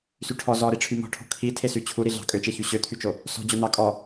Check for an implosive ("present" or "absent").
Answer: absent